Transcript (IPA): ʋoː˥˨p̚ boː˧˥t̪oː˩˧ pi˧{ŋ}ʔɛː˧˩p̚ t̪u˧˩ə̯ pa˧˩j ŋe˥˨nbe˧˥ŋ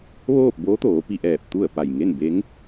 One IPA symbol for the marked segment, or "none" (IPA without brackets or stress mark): none